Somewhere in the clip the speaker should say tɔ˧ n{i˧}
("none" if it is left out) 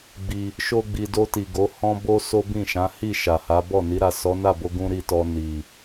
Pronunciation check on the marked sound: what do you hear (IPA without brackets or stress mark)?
i˨